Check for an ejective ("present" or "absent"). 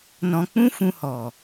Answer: absent